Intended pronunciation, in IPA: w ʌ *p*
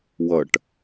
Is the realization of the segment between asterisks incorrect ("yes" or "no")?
yes